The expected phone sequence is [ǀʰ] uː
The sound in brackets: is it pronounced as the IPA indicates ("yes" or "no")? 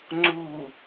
no